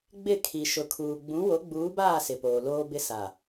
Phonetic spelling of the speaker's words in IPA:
ɡ͡b ɪ˦˨ kʰ i˨ ʃ ʊ˨ kʰ uː˨ ɡ͡b ũ˨˦ w o˨˦ ɡ͡b uː˨˦ b aː˦˨ s ɪ˨ p oː˨ l oː˦ b ɪ˦ s a˨

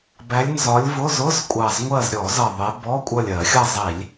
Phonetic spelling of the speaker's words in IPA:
b æ˨˦ lʲ n z ɒ˨˦ lʲ v ʊ˧˥˧ z ʊ˧˥˧ z kʷʼ ɑ˨˩ z ŋʷ ɜ˦˨ z ɾʲ ɔ˧˩˧ z ʌ˨˩ ðˤ ɪ˨˦ b ɔ˧˥˧ kʷʼ ʌ˦˨ lʲ ɜ˧˩˧ xʲ ʌ˦˨ zˤ i˧˩˧ lʲ

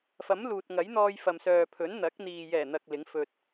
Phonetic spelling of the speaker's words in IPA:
f ɐ˨˥ m l uː˨ t̚ ŋ ɐ˨˥ j n̪ ɔː˧ j f ɐ˨ m s œː˨ pʰ ɵ˨˥ n n̪ ɐ˨˥ k̚ n̪ iː˨ j ɛː˨˩ n̪ ɐ˨ k̚ l ɪ˨˥ ŋ f ɵ˧ t̚

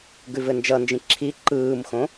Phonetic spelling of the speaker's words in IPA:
ɡ ʉ v ɘ n d͡ʒ ʌ n d͡ʒ ĩ ǁʰ i ǃ ɯː m x õ

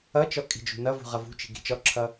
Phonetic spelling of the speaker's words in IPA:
ʌ t͡ʃ ɔ kʼ i̤ d͡ʒ ṳ n ʌ v ṳ ʁ ʌ v ṳ t͡ʃ i̤ ɡ i̤ t͡ʃ ɔ ǁʰ ʌ

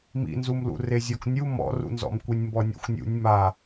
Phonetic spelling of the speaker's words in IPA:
m ḭ n z u m l ṵ r e zʲ ɔ k nʲ u m ɔ̰ r ṵ n z ɔ̰ m kʷ i nʲ m b ɔ nʲ ɔ̰ xʷ nʲ ṵ nʲ m a

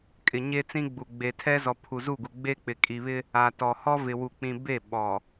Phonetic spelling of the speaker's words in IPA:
kʼ ɪ˨ ɲ e˦ t͡s ĩ˦ ɡ͡b u˨ ɡ͡b e˨ tʰ ɛ˦ z ɔ˨ pʰ u˨ z u˦˨ ɡ u˨ ɡ͡b e˦ k͡p ɪ˨ kʼ i˨ β ɪ˦ | a˨ t ɔ˨ h ɔ˦ v ɪ˨ w u˨ k͡p ĩ˨ b e˦˨ ɓ ɔ˨

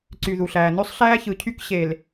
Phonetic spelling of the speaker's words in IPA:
ǀ y˨ ð u˨ ɬ æː˨ n ø˦ sˤ ɬ æː˦ ç ɯ˨ cʰ y˦ k ɕ e˨ l

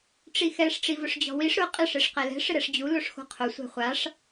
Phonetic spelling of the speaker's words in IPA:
ʈ͡ʂ i x ɛ ʂ ʈ͡ʂ i v ʊ ʂ d͡ʑ ɔ̤ w i ʂ ɾ ʊ qʼ ɪ ʂ e ʂ q ɛ l ɛ̤ ʂ ɪ ɾ ɛ ʂ d͡ʑ u l o ʂ x o̤ qʰ ʊ sʷ ɛ̤ χʷ a ʂ

